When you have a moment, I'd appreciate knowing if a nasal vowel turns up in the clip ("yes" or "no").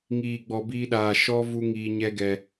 no